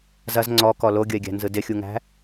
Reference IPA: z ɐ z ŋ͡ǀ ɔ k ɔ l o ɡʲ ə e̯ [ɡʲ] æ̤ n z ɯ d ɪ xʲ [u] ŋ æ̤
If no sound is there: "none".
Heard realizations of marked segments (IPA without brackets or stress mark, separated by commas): ɡʲ, u